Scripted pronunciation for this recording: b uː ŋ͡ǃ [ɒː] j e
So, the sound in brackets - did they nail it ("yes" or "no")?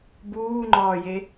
yes